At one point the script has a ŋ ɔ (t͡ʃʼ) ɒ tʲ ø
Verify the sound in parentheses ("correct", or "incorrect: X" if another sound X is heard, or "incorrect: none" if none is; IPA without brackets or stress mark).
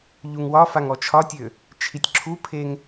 incorrect: t͡ʃʰ